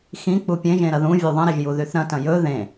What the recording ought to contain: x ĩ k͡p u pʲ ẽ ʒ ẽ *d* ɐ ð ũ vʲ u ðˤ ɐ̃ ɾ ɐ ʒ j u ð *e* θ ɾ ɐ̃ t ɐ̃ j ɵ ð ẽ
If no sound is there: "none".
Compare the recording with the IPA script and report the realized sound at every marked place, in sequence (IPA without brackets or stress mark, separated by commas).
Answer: ɾ, y